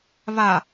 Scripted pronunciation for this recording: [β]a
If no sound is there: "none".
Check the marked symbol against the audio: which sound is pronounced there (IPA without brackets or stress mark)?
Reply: β